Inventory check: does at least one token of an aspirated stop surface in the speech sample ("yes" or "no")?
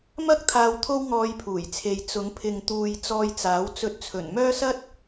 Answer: yes